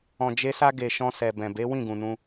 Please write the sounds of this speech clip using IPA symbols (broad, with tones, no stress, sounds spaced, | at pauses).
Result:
ɔ̃˨ d͡ʒ e˧ s a˧ ɡ e˨ ʃ ɔ̃˧ s ɛ˨ b ɛ̃˨ b e˨˦ w ĩ˦˨ ɡ ũ˨ n ũ˧